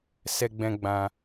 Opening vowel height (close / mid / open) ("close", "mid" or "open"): mid